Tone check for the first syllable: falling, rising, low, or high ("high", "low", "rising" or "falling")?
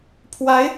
rising